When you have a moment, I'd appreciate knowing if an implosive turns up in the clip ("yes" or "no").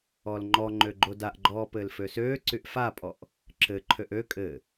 no